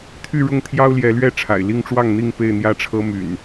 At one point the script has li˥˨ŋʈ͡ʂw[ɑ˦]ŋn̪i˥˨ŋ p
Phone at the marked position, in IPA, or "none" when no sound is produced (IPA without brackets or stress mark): ɑ˥˨